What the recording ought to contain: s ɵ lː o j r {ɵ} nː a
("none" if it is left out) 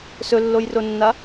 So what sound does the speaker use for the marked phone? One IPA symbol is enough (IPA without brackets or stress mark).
o